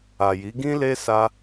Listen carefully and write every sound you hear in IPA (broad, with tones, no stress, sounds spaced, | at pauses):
a˨ j i˨˦ ɡ ĩ˦ l e˦ s a˦